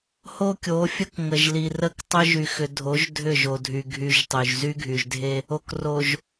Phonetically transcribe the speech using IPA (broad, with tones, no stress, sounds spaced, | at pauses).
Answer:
h o˦ kʲ o˨˦ fʲ ə˦ k ŋ ə˨ ʒ l i˨ r ə˦ k tˤ ʏ˦ ʒ y˨ x ʏ˨ dʱ o˨˦ ʒ dʱ ʏ˦˨ ʒ o˨ dʱ y˨ ɡʱ y˦ ʒ tˤ y˨ ʒ z y˦ ɡʱ y˨ ʒ dʱ e˦ | o˨ k r o˨ ʒ